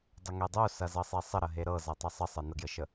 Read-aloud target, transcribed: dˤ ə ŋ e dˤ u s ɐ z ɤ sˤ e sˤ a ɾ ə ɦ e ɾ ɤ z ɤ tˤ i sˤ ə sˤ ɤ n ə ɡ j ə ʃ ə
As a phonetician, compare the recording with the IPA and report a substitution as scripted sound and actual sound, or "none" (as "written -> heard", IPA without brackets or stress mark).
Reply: a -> ə